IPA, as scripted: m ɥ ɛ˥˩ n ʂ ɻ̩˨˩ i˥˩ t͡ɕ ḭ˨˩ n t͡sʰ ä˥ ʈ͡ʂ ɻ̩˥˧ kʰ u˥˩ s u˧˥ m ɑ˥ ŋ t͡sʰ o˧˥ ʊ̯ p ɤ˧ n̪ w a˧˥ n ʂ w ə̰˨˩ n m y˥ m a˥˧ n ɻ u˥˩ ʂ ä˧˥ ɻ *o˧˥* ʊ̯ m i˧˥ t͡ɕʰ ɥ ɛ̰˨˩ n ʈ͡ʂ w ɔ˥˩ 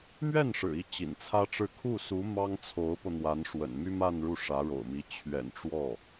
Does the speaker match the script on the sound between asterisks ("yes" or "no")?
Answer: no